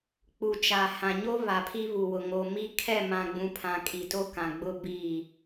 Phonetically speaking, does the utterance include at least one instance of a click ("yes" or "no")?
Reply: no